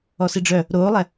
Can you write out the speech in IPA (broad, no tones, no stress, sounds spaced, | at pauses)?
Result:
ɔ s i ɖ͡ʐ œ | ɾ oː lˠ ɛ